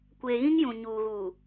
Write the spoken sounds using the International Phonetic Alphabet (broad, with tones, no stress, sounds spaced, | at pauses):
kʷ eː˨ ɣ ĩ˦ ŋ j ũ˨ ɲ uː˨ ɣ uː˨